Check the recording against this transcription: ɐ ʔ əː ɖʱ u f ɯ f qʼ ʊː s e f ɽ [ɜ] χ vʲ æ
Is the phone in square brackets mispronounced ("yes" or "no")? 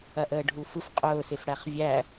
yes